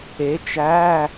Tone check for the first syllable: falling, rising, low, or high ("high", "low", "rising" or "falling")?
rising